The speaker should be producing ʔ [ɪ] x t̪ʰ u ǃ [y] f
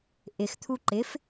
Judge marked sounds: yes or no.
yes, no

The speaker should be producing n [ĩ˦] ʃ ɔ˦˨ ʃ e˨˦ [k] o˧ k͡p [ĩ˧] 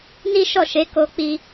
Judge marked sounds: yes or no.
no, yes, no

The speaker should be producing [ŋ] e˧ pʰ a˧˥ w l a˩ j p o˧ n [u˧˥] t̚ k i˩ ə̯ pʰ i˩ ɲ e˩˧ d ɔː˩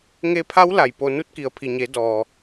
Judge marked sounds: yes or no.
yes, yes

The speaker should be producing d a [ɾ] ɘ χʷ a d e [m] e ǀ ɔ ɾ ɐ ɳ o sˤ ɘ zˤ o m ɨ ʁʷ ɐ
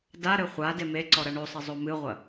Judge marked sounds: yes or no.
yes, yes

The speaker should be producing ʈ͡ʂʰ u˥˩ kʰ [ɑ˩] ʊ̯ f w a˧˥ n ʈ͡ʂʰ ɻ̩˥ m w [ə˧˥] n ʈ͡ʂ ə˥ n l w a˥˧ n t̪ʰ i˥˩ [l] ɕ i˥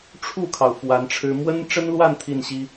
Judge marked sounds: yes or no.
yes, no, no

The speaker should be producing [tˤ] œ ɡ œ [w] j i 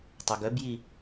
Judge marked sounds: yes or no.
yes, no

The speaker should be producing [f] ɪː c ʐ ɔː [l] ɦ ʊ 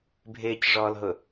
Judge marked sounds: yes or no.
no, yes

